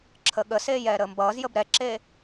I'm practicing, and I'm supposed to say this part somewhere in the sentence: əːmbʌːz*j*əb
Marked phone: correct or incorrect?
correct